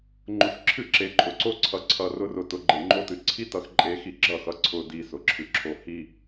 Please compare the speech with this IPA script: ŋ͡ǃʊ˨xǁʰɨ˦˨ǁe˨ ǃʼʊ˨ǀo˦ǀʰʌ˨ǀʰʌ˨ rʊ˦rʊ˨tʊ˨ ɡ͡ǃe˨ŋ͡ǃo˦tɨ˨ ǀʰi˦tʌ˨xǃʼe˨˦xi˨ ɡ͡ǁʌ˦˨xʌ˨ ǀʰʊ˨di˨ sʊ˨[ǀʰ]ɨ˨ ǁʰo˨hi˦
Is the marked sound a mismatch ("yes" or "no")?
yes